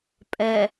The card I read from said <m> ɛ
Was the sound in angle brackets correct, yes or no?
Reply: no